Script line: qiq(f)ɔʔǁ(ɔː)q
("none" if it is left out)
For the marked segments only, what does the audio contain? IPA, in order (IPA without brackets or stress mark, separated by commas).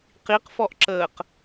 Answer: f, əː